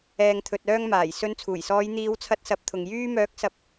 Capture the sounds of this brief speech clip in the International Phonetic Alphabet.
ɛː˨ŋt̪ʰɵ˨t̚œː˧ŋmaː˨˩j sɵ˨˧nt͡sʰuː˨˩jsɔː˨˧j n̪iː˨˧wt͡sʰɐ˧t̚sɐ˨˥p̚t̪ʰʊ˨ŋ jyː˥ mœː˨˥k̚sɐ˨˥p̚

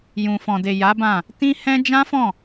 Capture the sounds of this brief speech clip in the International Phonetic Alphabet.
jũ˨fɔ̃˨de˨ ja˨˦bã˦˨ | tĩ˦ hɛ̃˦ d͡ʒã˦fɔ̃˦˨

